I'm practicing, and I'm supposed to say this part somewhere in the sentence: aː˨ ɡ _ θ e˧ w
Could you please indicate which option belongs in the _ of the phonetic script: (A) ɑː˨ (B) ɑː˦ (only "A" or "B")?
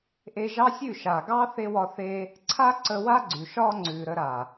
B